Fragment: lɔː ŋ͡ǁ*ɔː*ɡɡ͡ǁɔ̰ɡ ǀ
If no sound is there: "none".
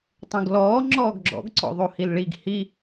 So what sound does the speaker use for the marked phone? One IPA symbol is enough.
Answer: ɔː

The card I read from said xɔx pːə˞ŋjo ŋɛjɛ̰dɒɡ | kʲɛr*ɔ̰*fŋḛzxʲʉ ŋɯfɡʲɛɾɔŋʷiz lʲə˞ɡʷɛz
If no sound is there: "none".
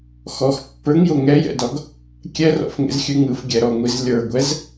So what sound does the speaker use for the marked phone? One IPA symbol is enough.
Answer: ɔ̰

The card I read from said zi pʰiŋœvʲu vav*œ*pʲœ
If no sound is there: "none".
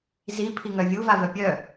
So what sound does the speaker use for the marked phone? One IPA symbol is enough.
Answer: œ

